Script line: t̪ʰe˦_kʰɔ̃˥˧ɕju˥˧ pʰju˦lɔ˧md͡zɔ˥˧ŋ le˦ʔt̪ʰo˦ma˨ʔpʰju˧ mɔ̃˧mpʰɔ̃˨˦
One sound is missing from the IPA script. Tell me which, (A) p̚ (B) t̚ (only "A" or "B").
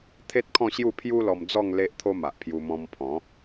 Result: B